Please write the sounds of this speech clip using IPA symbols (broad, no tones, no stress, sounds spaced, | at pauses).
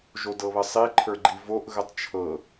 ʒ o d ɤ β ə sˤ i ǃʰ ə˞ ɡ͡ǃ i v o ʔ ɣ ə tˤ t͡ʃʰ ɤ